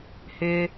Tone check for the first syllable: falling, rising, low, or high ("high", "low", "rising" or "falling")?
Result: low